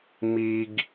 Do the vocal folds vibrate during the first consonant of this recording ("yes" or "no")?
yes